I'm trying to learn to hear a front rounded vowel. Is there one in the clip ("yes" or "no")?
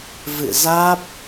no